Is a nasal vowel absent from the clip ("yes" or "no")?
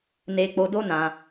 no